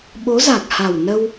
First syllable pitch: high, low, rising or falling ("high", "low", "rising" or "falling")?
rising